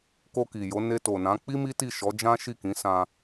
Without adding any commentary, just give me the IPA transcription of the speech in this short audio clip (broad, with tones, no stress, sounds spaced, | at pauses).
k o˧ k i˨ j o˨˦ n e˧ t o˨ n ã˨˦ k͡p i˦ m i˦ t i˦˨ ʃ ɔ˨˦ d͡ʒ ã˦ ʃ i˦˨ k ĩ˨˦ s ã˧